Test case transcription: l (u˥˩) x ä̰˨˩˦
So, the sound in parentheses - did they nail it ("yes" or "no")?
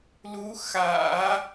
no